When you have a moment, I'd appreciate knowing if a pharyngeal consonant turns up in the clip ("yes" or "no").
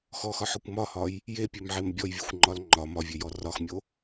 yes